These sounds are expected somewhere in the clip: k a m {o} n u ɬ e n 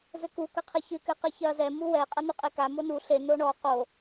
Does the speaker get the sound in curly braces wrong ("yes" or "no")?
no